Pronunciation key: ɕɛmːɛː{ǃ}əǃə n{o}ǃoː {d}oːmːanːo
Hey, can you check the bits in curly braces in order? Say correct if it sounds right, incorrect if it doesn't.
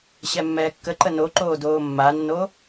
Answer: incorrect: kː, correct, correct

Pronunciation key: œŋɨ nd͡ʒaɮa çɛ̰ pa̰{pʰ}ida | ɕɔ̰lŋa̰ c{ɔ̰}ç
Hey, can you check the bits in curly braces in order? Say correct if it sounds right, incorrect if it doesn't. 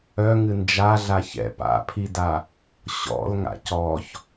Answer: correct, incorrect: ɔ

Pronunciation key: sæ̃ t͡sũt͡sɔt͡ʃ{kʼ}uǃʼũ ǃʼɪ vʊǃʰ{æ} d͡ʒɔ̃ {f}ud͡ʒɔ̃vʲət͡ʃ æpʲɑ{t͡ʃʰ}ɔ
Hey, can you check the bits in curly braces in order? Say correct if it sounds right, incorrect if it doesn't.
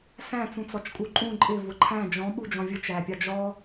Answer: correct, incorrect: æ̃, incorrect: ɓ, incorrect: d͡ʒ

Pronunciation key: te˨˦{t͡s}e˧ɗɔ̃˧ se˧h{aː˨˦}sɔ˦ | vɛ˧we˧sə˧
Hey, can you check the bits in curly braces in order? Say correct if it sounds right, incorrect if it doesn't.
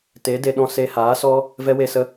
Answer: incorrect: d, correct

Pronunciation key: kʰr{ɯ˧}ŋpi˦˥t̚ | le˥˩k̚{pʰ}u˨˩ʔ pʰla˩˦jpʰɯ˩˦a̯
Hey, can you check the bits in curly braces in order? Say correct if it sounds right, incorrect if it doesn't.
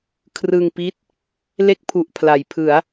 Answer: correct, correct

